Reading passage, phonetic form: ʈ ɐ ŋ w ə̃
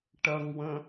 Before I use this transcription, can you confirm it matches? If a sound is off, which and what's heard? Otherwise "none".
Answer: none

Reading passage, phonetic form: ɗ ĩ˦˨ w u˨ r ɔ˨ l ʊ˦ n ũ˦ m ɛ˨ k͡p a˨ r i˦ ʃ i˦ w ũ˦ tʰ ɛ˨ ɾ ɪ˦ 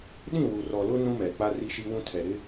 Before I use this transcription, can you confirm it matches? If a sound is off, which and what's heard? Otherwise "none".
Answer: a˨ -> a˦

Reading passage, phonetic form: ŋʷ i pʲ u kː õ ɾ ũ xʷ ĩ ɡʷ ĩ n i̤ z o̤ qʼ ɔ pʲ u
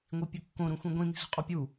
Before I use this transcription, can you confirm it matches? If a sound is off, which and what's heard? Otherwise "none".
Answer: none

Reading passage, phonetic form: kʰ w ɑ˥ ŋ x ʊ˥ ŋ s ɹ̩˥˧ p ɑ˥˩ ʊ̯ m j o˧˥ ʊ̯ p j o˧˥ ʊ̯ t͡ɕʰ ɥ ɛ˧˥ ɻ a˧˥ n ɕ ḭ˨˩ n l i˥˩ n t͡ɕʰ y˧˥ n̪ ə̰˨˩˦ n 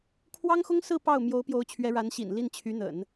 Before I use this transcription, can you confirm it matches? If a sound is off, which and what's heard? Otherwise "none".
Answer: none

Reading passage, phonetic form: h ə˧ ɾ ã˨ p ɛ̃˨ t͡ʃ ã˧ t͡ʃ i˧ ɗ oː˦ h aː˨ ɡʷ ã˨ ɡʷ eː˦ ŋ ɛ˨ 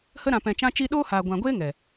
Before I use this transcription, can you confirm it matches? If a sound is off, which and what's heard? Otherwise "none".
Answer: none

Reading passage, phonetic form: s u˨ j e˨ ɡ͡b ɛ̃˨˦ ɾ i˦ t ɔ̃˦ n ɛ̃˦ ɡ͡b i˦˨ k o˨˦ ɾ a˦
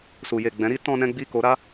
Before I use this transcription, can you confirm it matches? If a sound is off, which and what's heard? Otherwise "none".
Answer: none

